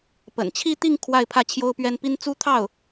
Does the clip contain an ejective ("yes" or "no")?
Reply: no